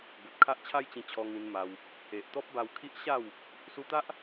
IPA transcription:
b o˨ t̚ kʰ a˦ ʔ t͡ɕʰ a˦ j t͡ɕ ĩ˧ t͡ɕʰ ɔ˧ ŋ ĩ˧ n m a˧ w | e˨ ʔ t̪ ɔ˦ p̚ b a˧ w kʰ i˦ ʔ ɕ a˥˧ w | s u˧ t̪ a˦ ʔ

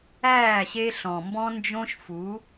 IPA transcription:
æː˦˨ ɕ e˦ ɬ ɔ̃˨ m b ɔ̃˦ n d͡ʒ õ˦ ʃ f u˨˦

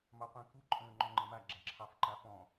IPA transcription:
m ɑ qʷ ɛ̃ k u ǃʼ ə̃ː ŋ͡ǃ ɔ̃ ŋ͡ǃ ɛ̃ m a ɡ͡ǁ a ǁʰ ɑ f ǃ a f ɔ̃

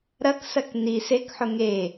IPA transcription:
ɾ ɐ k s ɐ k n i s e k ħ ʊ ŋ e

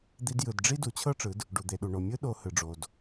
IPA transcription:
d̪ i˧ d j ɯ˩ d ɖ͡ʐ i˥ d u˩˧ t͡ɕʰ ɤ˥ ʈ͡ʂ ɯ˩˧ d | ɖ u˩ d̪ e˩ ɗ u˩ ɳ o˩ mʲ ɯ˥ ɗ o˧ h ɯ˩ ɖ͡ʐ o˩ d

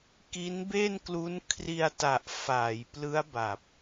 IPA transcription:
k i˦˥ n b e˥˩ n k l u˦˥ n kʰ r i˧ a̯ t a˨˩ ʔ f aː˩˦ j p l ɯ˦˥ a̯ b a˨˩ p̚

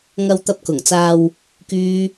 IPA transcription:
ŋ ɐ˧ w t̪ ɐ˧ p̚ k ʊ˨˩ ŋ t͡s aː˧ w | k yː˥

